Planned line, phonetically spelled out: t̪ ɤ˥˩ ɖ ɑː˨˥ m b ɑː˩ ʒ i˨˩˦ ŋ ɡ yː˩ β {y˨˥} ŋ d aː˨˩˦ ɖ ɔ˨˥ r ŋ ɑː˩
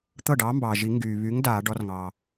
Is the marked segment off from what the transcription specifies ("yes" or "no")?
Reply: no